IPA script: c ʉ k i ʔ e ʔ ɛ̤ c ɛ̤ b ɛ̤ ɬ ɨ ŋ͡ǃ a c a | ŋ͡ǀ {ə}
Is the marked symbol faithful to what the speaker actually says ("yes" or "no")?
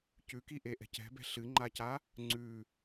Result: no